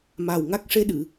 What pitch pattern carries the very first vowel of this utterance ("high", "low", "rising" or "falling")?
low